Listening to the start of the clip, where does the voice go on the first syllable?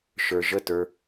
low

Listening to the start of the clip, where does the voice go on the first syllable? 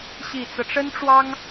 low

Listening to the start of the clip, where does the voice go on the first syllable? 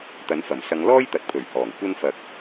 rising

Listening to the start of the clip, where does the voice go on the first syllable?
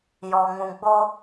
low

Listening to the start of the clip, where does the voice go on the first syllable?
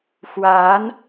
rising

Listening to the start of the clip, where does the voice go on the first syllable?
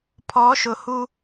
rising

